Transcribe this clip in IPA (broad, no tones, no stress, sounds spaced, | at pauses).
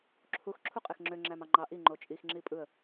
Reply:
ǁʰ u x ǁʰ u qʼ e x ŋ͡ǁ ø ŋ͡ǁ æ m ɑ ŋ͡ǃ ɑ ʔ i ŋ͡ǃ o t͡ʃʼ i x ŋ͡ǁ i pʼ ɯ ə̯